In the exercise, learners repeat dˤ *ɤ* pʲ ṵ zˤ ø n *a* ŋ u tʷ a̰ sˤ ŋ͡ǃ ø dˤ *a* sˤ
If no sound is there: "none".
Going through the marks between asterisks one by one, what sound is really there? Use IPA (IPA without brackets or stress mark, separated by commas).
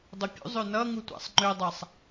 ɤ, ʌ, a